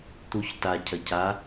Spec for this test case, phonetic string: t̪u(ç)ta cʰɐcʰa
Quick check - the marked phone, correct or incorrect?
correct